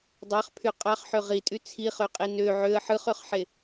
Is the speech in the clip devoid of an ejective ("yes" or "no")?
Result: no